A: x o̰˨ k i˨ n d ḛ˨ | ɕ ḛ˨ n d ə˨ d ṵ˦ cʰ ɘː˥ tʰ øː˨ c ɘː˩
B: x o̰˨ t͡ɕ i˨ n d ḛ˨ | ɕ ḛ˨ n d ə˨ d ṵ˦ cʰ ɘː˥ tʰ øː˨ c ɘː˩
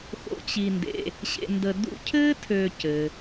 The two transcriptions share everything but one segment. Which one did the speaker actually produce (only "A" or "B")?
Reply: B